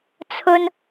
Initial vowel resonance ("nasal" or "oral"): oral